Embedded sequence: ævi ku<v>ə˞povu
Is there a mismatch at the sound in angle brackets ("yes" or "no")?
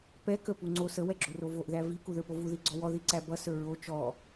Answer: yes